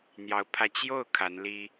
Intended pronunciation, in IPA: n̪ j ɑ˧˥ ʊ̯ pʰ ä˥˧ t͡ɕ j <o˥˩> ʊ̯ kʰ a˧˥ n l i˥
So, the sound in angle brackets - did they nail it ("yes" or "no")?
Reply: yes